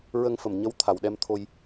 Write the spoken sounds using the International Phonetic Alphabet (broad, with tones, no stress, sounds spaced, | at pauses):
ɹ ə˧ ŋ f ə˨˩ m ɲ ə˧˥ w t̪ʰ a˨˩ w ɗ ɛ˧ m t̪ʰ o˧ j